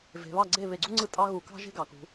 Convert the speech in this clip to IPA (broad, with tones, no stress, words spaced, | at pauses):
ve̤˩˧βɑ˥˩ɡ͡ǀe˥˩ βe˧˩˧ɡ͡ǀu˥ŋ͡ǀɯ˥˩ tʼɑ˥ɣu˧˩˧ kɑ̤˥ʒe̤˥ɡɑ˩˧ kṳ˩˧